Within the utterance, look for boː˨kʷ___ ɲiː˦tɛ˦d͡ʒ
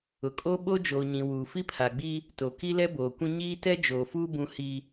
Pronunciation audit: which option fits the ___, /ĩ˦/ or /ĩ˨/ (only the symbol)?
ĩ˦